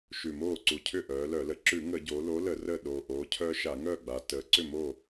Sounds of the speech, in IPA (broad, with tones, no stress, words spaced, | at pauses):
ʃʉ˨˩moː˥˩ ǀu˨˩cʰʏ˥˩ ʔœː˩˧lœ˧˩˧lə˩˧ ǁʉ˧˩˧ŋəː˧˩˧ɟoː˩˧ lo˨˥lə˧˩˧ rəː˥˩ɗoː˨˩ ʔoː˩˧cʰœː˦ ʃa˧˩˧ŋœː˥˩ɡ͡ba˩˧ təː˩˧ ǀʏ˥˩moː˥˩